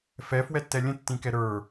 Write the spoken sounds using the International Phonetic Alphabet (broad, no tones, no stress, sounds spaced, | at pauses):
f ɛ f w ɛ tː ɛ lʲ ə̃ tː ĩ k ɛ ɾ ə˞